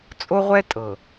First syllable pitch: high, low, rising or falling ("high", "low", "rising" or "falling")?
high